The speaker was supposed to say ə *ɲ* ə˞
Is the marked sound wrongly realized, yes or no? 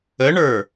yes